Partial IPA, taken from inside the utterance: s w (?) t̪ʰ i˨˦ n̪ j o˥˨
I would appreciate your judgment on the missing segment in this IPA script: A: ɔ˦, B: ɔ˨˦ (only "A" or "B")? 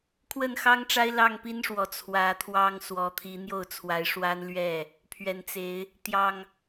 B